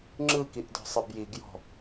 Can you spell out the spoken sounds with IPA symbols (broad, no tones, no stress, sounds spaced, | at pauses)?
ŋ͡ǁ ɯ k i ʔ d ɔ̤ sˤ ɯ b j i ɡ j ɔ̤